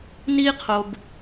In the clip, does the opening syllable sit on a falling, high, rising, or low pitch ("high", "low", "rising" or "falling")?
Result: high